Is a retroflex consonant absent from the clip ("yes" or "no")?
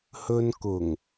yes